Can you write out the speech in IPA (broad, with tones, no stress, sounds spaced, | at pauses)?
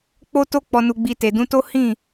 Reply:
k͡p o˦ t o˦ k͡p ɔ˧ n u˧ ɡ͡b i˧ t e˨ d ũ˨˦ t o˦ h ĩ˦˨